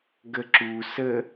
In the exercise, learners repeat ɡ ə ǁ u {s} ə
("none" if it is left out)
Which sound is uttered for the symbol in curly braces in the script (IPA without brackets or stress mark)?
s